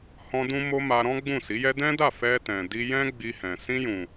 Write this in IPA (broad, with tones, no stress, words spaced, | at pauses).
hɔ̃˧dũ˧mo˧ ma˧ɾɔ̃˦ ɡ͡bũ˦˨si˨˦jɛ˦ dɛ̃˦da˦˨ fɛ˧tɛ̃˨ di˧jɛ̃˦ɡ͡bi˧hɛ̃˨ sĩ˧jũ˨